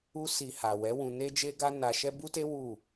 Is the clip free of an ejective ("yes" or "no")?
yes